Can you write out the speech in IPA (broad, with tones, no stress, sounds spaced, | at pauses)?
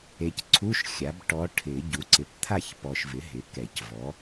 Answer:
e˨ c ǀʰ u˧˥˧ ʃ xʲ a˩˥ b ʈ ɔ˧˥ ʈʰ ɪ˨˩˦ ɟ u˩˥ ǀ ɪ˨ p t̪ʰ a˥˨ ç p ɔ˨ ʃ v ɪ˩˥ ɦ ɪ˩˥ k ɛ˨˩˦ c v ɔ˩˥